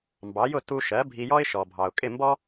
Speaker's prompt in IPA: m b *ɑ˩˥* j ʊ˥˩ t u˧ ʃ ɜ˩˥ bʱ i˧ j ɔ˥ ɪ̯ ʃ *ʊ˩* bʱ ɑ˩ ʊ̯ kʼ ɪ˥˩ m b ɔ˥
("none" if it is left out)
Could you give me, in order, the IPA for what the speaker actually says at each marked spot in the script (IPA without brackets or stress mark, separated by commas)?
ɑ˩˥, ɔ˩